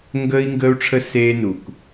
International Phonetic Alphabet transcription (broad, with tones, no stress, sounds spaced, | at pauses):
ŋ ɡ ə˦ i̯ ŋ ɡ əː˦ u̯ ʈ͡ʂʰ ə˦ s eː˦ n u˨ k